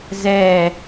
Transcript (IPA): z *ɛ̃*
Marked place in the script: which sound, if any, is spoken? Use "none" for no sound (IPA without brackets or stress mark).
ɛ